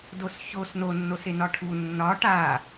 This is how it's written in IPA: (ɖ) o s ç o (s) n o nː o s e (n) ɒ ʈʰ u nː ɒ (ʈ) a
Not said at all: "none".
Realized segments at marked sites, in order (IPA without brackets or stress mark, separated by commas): d, s, n, ʈ